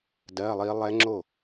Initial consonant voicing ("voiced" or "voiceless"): voiced